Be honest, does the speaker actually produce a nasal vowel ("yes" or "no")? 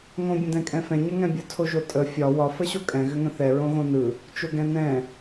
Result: yes